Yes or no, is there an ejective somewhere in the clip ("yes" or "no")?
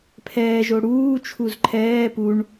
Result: no